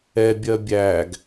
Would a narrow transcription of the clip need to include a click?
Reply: no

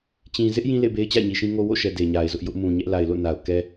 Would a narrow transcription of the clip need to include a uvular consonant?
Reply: no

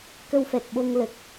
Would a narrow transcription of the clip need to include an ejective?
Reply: no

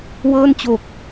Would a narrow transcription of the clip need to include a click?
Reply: no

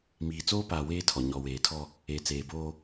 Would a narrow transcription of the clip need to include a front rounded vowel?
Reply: no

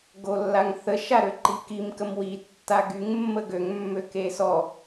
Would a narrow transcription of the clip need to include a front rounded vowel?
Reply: yes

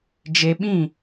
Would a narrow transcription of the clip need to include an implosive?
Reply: yes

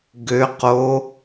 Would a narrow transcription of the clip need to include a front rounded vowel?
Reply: yes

